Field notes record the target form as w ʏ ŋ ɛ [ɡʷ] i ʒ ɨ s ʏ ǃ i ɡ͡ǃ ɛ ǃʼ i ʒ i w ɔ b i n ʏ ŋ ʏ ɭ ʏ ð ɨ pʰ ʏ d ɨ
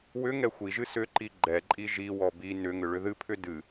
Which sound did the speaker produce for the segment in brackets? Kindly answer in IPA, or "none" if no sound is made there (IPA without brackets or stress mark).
xʷ